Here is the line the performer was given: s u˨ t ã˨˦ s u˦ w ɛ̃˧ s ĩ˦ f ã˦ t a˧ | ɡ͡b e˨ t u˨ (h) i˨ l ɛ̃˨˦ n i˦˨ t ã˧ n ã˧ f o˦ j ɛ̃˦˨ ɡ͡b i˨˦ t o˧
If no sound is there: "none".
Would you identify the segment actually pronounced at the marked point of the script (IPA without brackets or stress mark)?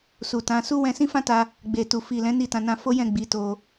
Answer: f